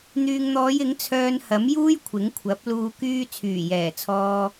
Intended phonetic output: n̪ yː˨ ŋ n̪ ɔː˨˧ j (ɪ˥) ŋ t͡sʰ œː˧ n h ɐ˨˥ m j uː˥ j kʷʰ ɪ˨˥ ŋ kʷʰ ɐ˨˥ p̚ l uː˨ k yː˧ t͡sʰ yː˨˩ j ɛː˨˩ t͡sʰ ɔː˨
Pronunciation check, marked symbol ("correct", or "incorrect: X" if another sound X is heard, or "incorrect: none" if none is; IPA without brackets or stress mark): incorrect: ɪ˨˥